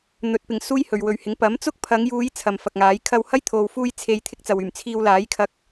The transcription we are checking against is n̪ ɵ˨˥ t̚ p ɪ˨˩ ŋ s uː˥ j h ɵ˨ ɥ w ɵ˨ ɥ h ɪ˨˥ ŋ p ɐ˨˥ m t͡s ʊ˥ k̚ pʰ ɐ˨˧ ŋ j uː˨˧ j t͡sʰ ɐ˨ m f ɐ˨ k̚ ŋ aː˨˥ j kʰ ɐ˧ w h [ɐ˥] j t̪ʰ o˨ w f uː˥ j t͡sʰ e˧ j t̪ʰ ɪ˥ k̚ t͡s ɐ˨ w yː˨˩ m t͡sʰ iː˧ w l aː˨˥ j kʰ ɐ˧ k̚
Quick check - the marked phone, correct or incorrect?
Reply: correct